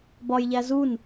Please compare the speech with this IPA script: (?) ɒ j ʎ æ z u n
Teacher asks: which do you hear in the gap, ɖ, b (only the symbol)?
b